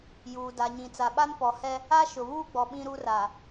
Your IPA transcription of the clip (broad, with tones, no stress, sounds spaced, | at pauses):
j uː˨ d a˨ ɲ ĩ˨ t͡s a˨ ɓ a˦ n p ɔ˨ h ɛ˦ | a˦ ʃ ʊ˨ β uː˦ ɡ͡b ɔ˨ ɓ ĩ˦ ɾ uː˦ r a˨